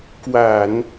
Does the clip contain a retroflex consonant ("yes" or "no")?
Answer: no